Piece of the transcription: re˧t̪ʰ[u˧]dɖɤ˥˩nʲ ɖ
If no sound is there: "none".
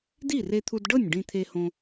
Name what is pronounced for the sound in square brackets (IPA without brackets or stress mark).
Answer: u˧